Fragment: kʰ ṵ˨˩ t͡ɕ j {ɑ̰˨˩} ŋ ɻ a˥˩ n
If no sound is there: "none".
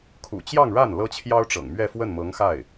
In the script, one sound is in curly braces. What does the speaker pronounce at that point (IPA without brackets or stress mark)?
ɑ˥˧